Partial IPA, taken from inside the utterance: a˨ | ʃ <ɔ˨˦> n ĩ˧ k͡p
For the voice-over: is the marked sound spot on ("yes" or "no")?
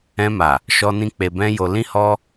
no